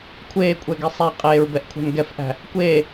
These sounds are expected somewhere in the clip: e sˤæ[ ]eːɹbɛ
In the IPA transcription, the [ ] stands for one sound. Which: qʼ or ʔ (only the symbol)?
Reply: qʼ